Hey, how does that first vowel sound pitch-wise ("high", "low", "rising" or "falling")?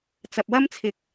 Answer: low